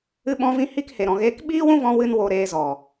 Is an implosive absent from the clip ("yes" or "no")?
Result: no